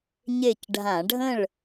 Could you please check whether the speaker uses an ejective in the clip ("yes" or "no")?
no